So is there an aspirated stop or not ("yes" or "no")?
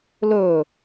no